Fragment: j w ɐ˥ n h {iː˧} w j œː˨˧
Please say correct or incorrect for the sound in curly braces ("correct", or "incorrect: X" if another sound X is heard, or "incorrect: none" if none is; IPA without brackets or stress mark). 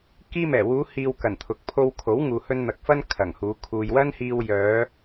correct